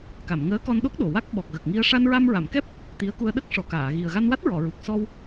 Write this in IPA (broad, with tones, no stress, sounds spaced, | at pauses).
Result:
k a˨˩˨ m ŋ əː˧˥ k ɔ˧ n ɗ o˦˥ k̚ ɗ o˨˩ w a˦˥ k̚ ɓ ɔ˨˩ k̚ ɣ ə˨˩ k̚ ŋ i˧ ə̯ ʂ a˧ n ɹ a˧ m ɹ a˨˩˨ m k ɛ˦˥ p̚ | t̪ i˧˥ ə̯ k u˧ ə̯ ɗ ə˦˥ k̚ ʂ ɔ˨˩ k aː˨˩˨ ɣ i˨˩ ə̯ ɣ a˧ n w a˦˥ t̚ ɹ ɔ˨˩˨ ɹ u˨˩ k̚ s ɔ˧ w